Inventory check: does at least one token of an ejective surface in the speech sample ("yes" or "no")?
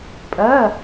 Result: yes